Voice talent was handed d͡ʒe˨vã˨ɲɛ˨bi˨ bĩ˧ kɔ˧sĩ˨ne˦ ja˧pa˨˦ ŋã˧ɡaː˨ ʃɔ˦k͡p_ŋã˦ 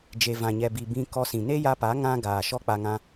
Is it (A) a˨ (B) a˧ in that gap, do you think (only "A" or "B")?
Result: B